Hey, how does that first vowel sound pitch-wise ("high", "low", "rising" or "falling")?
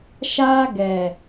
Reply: high